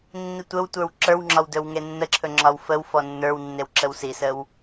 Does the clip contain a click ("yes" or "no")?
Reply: yes